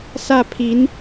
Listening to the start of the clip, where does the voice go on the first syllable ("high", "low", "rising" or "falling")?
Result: falling